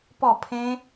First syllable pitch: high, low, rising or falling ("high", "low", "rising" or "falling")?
falling